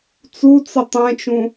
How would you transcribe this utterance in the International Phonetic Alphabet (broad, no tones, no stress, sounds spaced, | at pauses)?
t͡s u t͡s ə tˤ ɛ̃ t͡ʃ ũ